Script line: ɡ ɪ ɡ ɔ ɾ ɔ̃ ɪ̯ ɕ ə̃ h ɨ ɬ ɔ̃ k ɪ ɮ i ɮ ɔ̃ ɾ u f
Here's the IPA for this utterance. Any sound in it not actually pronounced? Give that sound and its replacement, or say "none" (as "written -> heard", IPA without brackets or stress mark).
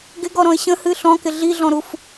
none